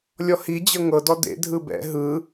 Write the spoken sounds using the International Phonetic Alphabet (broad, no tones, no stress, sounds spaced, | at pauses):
lʲ ɔ h i d͡ʑ ɤ ŋ ɤ d ɔ d ḛ dʱ ɯ b ɛ̰ ɦ ɯ